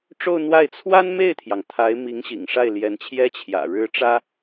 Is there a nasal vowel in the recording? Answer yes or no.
no